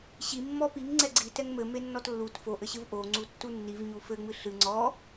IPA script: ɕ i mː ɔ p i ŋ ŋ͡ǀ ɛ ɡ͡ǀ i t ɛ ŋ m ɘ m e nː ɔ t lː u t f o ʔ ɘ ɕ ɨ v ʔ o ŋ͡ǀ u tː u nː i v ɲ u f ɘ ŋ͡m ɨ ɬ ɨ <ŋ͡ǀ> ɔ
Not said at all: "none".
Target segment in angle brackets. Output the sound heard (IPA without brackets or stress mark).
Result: ŋ͡ǀ